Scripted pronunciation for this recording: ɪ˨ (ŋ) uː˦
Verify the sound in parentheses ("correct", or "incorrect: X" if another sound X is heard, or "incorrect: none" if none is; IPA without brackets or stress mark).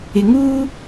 correct